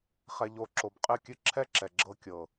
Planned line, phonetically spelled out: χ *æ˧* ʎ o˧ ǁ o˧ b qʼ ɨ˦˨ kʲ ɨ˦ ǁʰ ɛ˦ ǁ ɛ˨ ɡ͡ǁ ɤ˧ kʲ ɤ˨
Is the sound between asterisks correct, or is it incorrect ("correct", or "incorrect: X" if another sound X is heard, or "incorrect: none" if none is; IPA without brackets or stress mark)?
incorrect: ɛ˧